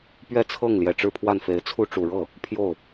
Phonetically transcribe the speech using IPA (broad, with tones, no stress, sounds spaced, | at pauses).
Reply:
p ɥ ɛ˥˧ t͡sʰ ɤ˥˩ ŋ l j ɛ˨˩ ʈ͡ʂ ɻ̩˥˧ pʰ w a˥˩ n f e˧˥ ɪ̯ t͡sʰ u˥ ʈ͡ʂ u˨˩ ɻ ɤ˥˩ | pʰ j o˥˩ ʊ̯